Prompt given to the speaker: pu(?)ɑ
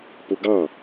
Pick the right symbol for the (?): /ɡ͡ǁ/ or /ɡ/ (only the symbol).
ɡ